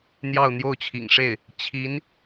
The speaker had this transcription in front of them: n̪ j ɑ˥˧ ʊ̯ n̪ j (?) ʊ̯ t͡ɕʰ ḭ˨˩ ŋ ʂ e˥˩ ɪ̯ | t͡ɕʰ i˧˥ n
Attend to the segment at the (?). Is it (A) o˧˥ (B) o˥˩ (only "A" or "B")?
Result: B